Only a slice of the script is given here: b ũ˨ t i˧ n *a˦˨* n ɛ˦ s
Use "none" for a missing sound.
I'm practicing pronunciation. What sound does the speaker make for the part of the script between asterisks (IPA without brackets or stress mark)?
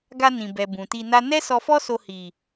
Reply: a˦